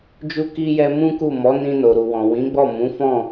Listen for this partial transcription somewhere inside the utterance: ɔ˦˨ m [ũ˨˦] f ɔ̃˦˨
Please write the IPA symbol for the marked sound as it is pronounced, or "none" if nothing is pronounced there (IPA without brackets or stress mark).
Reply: ũ˨˦